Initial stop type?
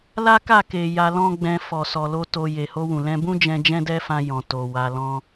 plain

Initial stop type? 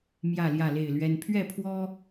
aspirated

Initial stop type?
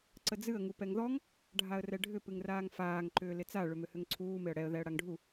click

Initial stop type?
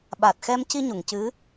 implosive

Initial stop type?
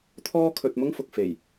aspirated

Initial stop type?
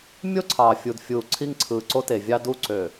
click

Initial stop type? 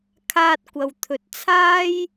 aspirated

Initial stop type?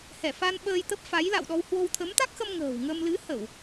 implosive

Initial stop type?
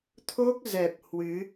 aspirated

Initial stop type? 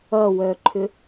click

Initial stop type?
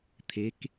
aspirated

